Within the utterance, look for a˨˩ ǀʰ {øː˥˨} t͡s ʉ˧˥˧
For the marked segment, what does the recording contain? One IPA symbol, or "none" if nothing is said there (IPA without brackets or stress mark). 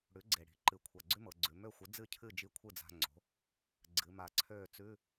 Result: øː˥˨